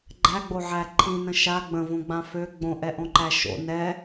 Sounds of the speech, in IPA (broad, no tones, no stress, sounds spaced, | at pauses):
ɡ͡ǃ æ ɡ͡b o ʕ æ ǃʰ ĩ n ə̃ ʃ a ɡ͡b ə̃ v õ ɡ͡b ã f ø ɡ͡b õ ʔ ɛ ʔ õ ǃ æ ʃ o̰ n ɛ